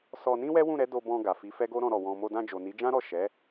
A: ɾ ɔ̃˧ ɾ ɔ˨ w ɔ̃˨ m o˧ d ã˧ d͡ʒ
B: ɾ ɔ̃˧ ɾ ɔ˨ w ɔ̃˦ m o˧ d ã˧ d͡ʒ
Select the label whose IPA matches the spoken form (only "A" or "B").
A